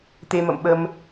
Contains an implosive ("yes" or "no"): yes